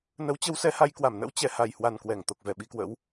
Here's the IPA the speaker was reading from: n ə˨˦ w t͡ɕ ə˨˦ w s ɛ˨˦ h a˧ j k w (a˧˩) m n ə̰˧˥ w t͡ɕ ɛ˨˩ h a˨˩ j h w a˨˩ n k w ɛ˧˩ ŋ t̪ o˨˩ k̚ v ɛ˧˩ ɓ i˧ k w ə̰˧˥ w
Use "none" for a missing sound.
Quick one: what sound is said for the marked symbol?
a˧˩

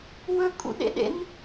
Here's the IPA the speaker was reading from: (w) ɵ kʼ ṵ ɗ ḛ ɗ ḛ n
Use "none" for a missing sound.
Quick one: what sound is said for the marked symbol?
w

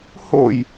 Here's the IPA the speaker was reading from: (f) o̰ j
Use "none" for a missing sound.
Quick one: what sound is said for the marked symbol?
h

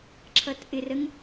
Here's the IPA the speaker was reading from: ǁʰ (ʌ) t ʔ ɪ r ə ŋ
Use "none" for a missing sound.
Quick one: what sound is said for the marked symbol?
ʌ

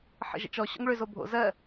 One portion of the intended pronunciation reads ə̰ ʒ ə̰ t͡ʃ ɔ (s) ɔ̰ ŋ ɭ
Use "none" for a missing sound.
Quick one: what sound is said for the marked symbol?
ɕ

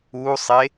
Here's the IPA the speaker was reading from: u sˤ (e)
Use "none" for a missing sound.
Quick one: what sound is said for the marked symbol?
e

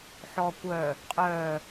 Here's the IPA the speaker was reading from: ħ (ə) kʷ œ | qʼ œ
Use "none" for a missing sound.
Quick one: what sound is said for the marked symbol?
ɔ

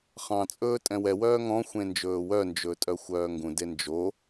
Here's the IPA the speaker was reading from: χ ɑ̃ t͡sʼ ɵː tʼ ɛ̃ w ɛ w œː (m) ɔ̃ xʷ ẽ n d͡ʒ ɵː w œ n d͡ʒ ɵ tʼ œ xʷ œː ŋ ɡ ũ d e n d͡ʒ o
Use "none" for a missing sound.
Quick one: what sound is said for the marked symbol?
ŋ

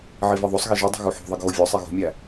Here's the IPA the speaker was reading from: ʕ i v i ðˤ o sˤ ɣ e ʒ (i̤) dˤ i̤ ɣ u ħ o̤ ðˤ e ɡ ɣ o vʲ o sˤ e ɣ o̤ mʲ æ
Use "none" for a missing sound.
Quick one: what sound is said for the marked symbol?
i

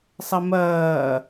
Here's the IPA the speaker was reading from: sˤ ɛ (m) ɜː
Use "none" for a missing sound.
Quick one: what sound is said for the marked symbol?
m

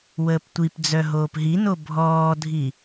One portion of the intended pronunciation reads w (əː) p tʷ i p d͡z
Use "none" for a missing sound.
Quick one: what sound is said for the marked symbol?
əː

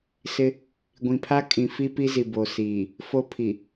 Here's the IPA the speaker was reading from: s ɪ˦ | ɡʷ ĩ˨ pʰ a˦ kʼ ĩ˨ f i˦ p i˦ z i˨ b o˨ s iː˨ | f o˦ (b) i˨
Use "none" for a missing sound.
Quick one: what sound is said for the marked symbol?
pʰ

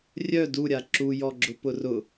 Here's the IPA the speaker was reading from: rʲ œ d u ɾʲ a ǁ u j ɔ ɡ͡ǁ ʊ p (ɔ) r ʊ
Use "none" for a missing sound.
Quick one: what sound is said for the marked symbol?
ʊ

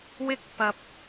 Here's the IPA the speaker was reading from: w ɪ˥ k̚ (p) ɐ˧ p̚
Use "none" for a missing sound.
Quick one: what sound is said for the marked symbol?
p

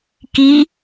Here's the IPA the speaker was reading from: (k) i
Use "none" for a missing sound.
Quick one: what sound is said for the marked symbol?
k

